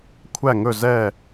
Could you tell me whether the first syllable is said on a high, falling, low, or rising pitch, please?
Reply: falling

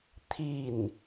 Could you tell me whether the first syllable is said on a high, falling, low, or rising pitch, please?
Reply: falling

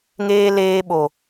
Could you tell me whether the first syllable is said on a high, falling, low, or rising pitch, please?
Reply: high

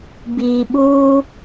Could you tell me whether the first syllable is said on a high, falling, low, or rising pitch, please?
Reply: low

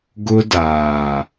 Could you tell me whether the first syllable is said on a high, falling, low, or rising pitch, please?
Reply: high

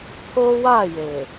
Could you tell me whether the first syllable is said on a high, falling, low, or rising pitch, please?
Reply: high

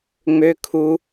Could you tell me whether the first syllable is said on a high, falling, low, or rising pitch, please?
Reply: high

